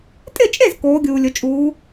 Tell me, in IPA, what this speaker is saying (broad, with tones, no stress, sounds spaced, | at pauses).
tʼ ɪ˥˨ t͡ʃʼ e˥˨ z k oː˨˦ ɡʲ uː˨ lʲ ʊ˨ t͡ʃʼ uː˨˦